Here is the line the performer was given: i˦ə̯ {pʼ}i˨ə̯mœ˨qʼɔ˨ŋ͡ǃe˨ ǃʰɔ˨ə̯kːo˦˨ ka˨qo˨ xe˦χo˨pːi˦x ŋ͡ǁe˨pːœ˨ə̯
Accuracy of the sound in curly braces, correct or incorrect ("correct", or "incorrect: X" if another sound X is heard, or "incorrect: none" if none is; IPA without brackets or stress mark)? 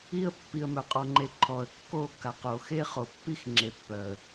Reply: incorrect: pː